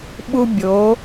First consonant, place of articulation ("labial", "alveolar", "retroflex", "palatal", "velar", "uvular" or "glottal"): labial